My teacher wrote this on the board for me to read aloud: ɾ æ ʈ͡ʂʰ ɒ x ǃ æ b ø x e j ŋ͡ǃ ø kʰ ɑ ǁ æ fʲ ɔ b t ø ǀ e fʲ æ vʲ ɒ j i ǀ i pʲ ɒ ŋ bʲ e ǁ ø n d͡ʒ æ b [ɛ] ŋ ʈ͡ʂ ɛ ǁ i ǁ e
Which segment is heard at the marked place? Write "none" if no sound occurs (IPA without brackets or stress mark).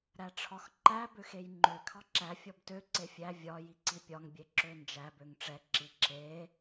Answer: ø